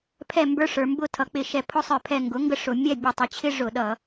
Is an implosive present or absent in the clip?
present